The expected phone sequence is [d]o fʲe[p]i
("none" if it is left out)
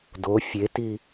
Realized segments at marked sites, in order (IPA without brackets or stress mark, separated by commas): d, t